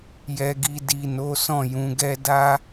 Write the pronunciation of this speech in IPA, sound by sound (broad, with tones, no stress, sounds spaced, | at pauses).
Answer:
j ɛ˨ ɡ i˨ d i˨ n o˨˦ s ɔ̃˦˨ j ũ˨˦ ɡ ɛ˦ d a˦